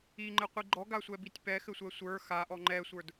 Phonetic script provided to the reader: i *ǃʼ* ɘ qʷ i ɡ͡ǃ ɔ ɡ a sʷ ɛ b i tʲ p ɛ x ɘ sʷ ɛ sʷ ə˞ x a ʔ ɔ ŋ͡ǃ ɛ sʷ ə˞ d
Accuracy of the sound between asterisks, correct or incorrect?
incorrect: ŋ͡ǃ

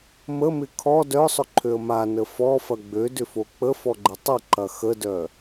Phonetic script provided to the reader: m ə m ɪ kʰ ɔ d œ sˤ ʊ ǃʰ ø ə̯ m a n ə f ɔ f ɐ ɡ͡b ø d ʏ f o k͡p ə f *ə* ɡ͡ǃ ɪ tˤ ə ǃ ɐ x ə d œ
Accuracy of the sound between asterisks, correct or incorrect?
incorrect: ɔ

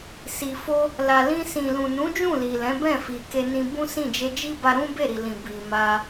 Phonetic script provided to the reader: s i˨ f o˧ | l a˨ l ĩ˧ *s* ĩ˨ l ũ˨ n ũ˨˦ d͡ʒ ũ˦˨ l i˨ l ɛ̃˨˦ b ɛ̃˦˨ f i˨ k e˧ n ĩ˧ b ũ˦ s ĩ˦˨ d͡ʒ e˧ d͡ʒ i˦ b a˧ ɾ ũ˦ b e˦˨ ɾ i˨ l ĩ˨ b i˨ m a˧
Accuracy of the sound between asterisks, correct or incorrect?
correct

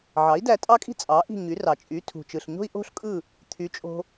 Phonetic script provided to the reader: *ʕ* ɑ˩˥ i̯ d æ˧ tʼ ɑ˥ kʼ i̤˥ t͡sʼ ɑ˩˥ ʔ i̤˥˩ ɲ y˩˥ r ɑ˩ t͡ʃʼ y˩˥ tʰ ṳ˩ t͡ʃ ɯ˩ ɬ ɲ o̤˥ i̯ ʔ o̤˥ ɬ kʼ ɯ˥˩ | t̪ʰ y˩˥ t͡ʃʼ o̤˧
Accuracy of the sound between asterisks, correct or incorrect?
correct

